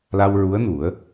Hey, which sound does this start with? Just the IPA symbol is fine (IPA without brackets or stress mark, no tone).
l